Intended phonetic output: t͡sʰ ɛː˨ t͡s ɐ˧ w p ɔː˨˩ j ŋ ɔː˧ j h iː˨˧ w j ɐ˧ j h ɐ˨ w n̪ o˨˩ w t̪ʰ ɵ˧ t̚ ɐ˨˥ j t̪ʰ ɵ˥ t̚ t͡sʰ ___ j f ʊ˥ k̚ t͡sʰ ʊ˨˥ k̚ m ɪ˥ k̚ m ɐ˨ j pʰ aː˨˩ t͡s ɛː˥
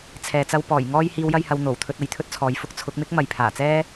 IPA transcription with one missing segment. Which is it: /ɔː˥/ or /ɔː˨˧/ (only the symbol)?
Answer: ɔː˨˧